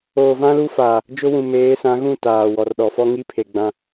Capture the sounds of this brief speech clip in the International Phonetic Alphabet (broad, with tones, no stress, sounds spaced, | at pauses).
oː˨ v ã˦ l u˦ f aː˨ | d͡ʒ ʊ˦ w ũ˨ m eː˨˦ s ã˨˦ ɣ ũ˦˨ t aː˨ w ɔ˨ r ɗ ɔ˨ f ɔ˦ ŋ i˦ pʰ e˨ ɡ͡b ã˦